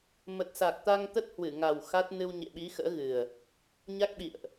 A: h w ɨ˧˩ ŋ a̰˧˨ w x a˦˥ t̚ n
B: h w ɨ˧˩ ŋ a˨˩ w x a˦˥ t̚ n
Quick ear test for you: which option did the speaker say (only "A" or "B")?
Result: B